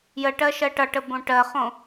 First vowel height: mid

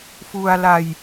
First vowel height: high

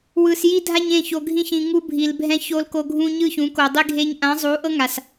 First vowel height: high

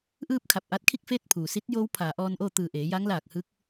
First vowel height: high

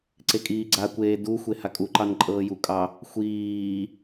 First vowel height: mid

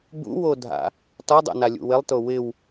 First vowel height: high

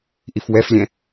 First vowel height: high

